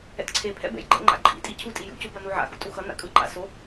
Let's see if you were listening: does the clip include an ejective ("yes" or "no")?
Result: yes